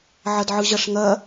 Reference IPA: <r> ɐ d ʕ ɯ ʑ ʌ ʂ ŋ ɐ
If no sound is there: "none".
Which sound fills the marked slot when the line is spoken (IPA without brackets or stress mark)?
ʕ